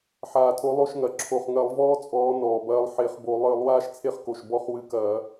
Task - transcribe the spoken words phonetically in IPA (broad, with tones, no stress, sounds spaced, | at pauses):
ħ aː˨˩ tʰ o˨˦ lˠ o˦˨ ʃ ŋ ɐ˨˩ ǁʰ o˨˩ χ ŋ ɐ˧˩˧ lˠ v ɔː˦ t͡sʼ ɔː˨˦ n ɔː˨˩ b ɐː˦ lˠ ħ e˧˩˧ χ b o˧˩˧ lˠ ɨː˧˩˧ lˠ w aː˦ ʃ t͡sʰ e˦ χ k o˨˩ ʃ b ɔ˦˨ χ w ɨ˨˦ k ɐː˧˩˧